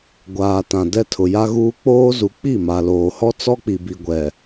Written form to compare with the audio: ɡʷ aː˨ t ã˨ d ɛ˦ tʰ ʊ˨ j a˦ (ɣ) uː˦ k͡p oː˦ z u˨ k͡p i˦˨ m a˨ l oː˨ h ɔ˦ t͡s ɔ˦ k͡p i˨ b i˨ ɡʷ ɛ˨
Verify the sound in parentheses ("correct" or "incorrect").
correct